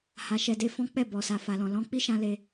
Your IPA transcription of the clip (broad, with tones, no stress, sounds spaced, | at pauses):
h a˧ ʃ ɛ˧ d e˦ f ɔ̃˦ k͡p ɛ˦˨ b ɔ˨ s a˨ f a˨ l ɔ̃˨ l ɔ̃˨˦ k͡p i˦ ʃ ã˧ l e˧